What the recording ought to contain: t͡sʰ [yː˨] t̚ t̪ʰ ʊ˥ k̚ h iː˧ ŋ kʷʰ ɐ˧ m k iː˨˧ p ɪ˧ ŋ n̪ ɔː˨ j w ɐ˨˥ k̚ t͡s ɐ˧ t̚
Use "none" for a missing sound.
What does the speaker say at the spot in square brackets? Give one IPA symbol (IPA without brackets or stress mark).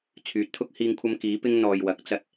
yː˧